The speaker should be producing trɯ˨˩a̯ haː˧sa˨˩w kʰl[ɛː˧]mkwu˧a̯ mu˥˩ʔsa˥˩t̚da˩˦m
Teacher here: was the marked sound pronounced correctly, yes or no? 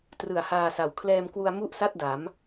yes